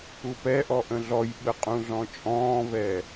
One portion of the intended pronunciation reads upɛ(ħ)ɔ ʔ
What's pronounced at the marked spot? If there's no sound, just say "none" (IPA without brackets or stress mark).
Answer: ʔ